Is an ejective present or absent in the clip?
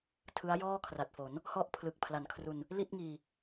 absent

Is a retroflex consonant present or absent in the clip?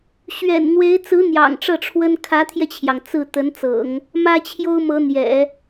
present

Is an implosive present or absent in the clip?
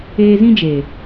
absent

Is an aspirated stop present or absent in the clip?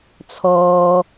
present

